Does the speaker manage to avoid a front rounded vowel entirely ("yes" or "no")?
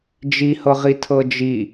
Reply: yes